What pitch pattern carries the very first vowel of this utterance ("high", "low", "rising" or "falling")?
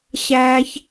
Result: low